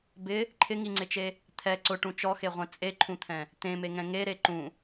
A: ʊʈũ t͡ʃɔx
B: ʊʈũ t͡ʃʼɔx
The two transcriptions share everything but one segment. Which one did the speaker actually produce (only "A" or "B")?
A